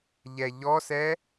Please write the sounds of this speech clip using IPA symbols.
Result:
ʎɛʎɔsɛ

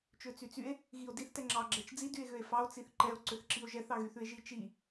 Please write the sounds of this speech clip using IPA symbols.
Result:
t͡ʃøt͡syt͡sye̯ | ɣio̯diθ tɛŋ͡ǁɑ ɡ͡ǁɛt͡ʃd͡zi dye̯ɣøe̯fɑo̯ t͡siθǃɛo̯ ǀøθǁio̯ʒɛθ ɑɣyθʉe̯ʒi t͡ʃi

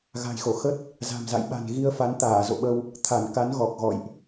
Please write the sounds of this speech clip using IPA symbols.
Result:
ɣa̤˨˩jxo˧˩xə˦˥t̚ | za̤˨˩mza̰˧˨j ɓa̤˨˩n ɣi˧ə̯fa˨˦n t̪aː˧˩zo̰˧˨ɓə˧w | t̪ʰa˧˩nka˨˦nɣɔ˨˩k̚ ɣɔ̰˧˨jʔ

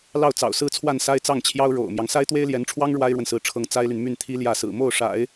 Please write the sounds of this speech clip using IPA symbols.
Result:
lɑ˥˩ʊ̯t͡sɑ̰˨˩ʊ̯sɹ̩˥t͡sʰwa˥˩n sa˥ɪ̯t͡sɑ˥˩ŋt͡ɕʰjɑ˥ʊ̯ ɻo̰˨˩ʊ̯mjɑ˦ŋ sa˥ɪ̯t̪we˥ɪ̯ljɛ˧˥nʈ͡ʂʰwɑ˥ŋ ɻwa˥ɪ̯ɻwə˨nsɹ̩˧˥ʈ͡ʂʰɤ˧˥ŋ t͡sa˥ɪ̯ly˨n my˥˩nt̪ʰi˥ljä˥˩ sɹ̩˨˩mo˥˩ʊ̯ʂa̰˨˩˦ɪ̯

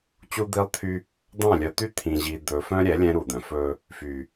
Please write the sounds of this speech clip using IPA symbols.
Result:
t͡ɕu˦d̪i˦lˠt̪ʰy˦ | d̪ɑ̃˦˨lʲœ˨t̪y˦ t̪ʰĩ˨ʑi˨ d̪ɵ˨fœ̃˦ɾʲɛ˨˦ lʲɛ̃˦ ɾu˨d̪œ̃˨fɵ˦ | fy˨

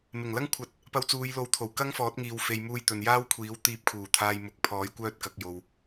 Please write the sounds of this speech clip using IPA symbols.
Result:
mɪ˨˩ŋlɐ˥ŋkʷʰɐ˨˥t̚ | pɐ˧wt͡suː˨˧jlo˨˥wt̪ʰo˨˩w kɐ˥ŋfɔː˨˥t̚ ŋiː˨wfe˨jmuː˧j t̪ɵ˨njaː˥wkʷʰiː˨˥w t̪iː˧p̚kʰuː˨˩ t̪ʰaː˧j mʊ˨˥k̚pʰɔː˨˥j kʷœː˥t̚kɐ˨˥k̚jo˧w

